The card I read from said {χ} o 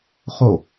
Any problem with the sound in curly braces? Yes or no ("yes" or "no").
no